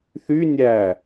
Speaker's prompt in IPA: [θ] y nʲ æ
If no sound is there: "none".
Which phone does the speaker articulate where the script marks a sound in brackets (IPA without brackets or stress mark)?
θ